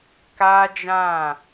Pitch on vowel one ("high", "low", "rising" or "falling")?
high